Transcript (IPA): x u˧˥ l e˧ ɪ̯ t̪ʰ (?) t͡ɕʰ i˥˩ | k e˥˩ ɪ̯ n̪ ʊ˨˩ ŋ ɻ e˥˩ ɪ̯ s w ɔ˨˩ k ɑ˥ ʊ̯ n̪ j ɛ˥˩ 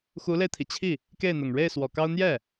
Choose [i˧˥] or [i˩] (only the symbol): i˩